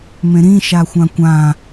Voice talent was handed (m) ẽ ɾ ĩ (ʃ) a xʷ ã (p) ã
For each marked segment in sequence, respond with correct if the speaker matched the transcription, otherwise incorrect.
correct, correct, incorrect: kʷ

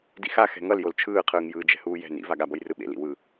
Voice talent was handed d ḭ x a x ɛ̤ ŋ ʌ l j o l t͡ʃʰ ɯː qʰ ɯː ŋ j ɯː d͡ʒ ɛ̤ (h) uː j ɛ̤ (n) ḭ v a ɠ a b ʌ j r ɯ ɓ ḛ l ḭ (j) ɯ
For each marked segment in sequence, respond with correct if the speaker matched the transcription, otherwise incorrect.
correct, correct, incorrect: w

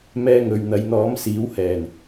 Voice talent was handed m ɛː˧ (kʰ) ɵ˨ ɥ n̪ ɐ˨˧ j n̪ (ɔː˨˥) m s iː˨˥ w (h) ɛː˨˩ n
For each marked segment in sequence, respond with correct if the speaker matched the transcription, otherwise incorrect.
incorrect: ŋ, correct, correct

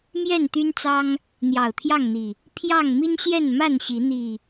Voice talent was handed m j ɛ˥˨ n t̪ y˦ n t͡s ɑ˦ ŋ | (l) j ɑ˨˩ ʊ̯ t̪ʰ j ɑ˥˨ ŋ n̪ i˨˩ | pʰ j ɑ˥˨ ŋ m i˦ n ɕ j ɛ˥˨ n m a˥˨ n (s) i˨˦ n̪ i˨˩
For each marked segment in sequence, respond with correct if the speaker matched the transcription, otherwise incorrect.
incorrect: n̪, incorrect: ɕ

